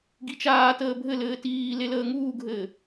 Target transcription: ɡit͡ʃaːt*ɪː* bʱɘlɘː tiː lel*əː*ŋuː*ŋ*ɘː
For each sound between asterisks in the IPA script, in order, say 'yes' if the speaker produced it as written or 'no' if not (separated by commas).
no, yes, no